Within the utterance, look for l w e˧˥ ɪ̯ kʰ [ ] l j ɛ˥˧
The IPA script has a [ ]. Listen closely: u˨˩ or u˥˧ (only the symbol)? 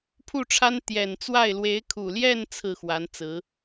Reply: u˨˩